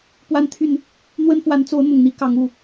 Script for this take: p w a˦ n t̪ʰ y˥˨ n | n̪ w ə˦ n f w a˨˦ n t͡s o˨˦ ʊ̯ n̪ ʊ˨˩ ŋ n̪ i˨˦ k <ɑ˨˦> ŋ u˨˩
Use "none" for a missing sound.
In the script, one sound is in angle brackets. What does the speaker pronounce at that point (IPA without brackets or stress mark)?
ɑ˨˦